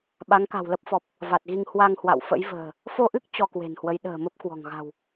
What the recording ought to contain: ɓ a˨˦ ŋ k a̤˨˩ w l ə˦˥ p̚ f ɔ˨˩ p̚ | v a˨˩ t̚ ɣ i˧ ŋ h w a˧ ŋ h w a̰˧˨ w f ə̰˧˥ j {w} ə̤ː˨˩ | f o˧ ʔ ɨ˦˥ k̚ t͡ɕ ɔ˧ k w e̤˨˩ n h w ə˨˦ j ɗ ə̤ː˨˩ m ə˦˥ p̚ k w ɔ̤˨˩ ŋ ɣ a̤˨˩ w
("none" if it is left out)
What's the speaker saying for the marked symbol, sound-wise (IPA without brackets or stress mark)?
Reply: v